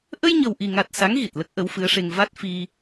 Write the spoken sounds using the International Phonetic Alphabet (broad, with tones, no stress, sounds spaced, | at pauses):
ʔ ə˧ j ɲ ə˨˩ w ʔ i˨˩ ŋ a˨˩ t̚ s a˧˥ ŋ ɣ i˨˩ t̚ l ə˦˥ k̚ ʔ ə˧˥ w f ɨ˧˥ ə̯ ʂ e˧ ŋ v a˦˥ t̚ f i˧